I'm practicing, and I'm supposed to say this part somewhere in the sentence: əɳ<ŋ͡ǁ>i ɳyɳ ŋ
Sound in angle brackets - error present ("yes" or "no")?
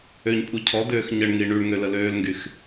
yes